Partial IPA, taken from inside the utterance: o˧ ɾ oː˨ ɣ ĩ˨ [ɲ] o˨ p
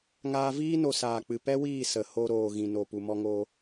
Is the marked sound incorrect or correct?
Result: incorrect